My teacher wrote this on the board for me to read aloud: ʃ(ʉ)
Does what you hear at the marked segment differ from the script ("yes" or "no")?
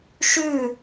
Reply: no